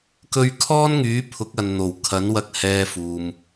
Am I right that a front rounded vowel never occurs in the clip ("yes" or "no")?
no